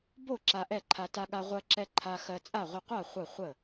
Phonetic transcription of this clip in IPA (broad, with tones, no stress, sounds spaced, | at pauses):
b o˥˩ ǁ a˧ ʔ ɛ˥˩ ǃʰ a˧ t a˧ ɠ a˧ ʁʷ ɜ˧ ǁ ɛ˧ ǃʰ a˧ x ɜ˧ t͡sʼ a˥˩ ʁʷ ə˧ qʷ a˥˩ χʷ ə˥˩ χʷ ə˥˩